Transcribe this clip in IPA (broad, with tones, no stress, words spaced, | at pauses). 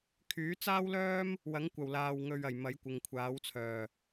kʰyː˨˥t͡saː˥wlœː˥m | wɐ˨˥ŋkʷɐ˨wlaː˨w ŋɵ˨ɥ ɐ˨˩jmɐ˨˥j kʷɪ˨ŋkʷʰaː˨˥wt͡sʰœː˨˩